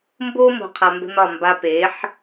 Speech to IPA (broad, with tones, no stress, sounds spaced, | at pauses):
m b o˦ m o̤˨ qʰ a˨ m b ə̤˦ n ɒ˦˨ m b a˦ p e˨˦ ħ